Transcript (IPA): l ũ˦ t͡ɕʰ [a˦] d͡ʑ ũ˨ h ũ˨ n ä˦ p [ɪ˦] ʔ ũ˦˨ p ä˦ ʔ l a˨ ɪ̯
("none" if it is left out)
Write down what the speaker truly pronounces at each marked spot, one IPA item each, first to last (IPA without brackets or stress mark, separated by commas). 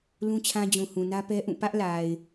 ã˦, ɛ˦